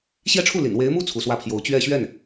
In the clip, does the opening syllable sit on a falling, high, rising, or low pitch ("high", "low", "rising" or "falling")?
falling